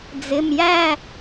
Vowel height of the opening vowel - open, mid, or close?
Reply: close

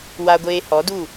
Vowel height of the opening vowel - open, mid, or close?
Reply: open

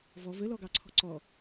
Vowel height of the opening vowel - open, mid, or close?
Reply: mid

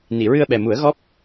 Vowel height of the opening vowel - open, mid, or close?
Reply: close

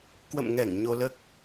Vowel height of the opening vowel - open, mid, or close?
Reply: mid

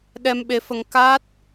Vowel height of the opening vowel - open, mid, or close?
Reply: mid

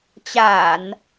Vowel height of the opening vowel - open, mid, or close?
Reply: open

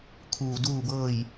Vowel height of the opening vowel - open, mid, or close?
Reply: close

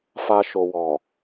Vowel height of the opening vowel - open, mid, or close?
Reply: open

